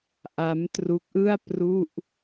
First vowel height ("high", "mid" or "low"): low